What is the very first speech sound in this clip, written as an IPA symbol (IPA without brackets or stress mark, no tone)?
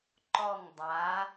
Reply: ǃ